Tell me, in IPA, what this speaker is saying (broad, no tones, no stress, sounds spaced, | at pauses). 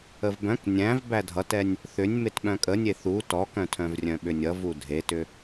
ə v b œ̃ k nʲ æ̃ v b æ dʱ ʌ t ɛ nʲ | θ ʏ nʲ m e t ɓ œ̃ kʼ ə nʲ e θ u t ɔ k œ̃ tʰ œ̃ v rʲ œ̃ ɓ ʏ nʲ ʌ v u dʱ e t ʏ